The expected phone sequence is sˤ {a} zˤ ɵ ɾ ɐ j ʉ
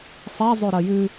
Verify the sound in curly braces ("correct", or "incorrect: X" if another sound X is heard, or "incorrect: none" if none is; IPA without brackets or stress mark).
correct